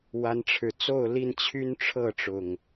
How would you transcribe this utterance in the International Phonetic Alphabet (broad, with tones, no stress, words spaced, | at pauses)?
wa˨˦nʈ͡ʂʰɻ̩˨˩ t͡so˥˨ʊ̯li˥˨n t͡ɕʰy˦nʈ͡ʂʰɤ˥˨ʈ͡ʂʊ˨˩ŋ